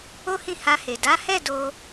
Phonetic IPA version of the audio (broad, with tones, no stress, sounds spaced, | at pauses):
o˦ h ĩ˦˨ h a˧ h e˨ d a˨˦ h ɛ˦˨ d o˧